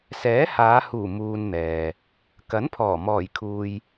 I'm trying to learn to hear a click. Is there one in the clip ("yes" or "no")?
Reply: no